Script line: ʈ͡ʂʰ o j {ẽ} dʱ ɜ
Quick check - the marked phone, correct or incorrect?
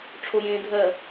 correct